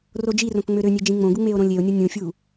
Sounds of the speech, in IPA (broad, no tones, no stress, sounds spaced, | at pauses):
r o d͡ʒ i r õ k ŋ͡m ø ɾ ø nʲ e d͡ʒ ĩ ŋ͡m õ ɡ u ŋ͡m e o̯ ɾ õ lʲ e o̯ nʲ o nʲ ũ fʲ u